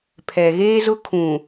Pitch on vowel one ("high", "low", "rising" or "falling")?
low